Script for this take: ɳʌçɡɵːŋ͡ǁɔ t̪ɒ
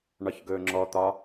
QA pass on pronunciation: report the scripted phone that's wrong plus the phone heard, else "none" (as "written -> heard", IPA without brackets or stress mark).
ʌ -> ɒ